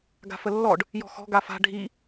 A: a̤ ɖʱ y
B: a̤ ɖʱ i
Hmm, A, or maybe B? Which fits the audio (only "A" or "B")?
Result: B